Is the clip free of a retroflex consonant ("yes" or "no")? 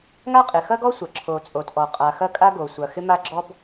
yes